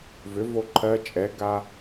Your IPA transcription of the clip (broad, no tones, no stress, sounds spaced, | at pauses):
v ʏ v o ǃʰ ɜ t͡ʃʼ ɛ ɡ a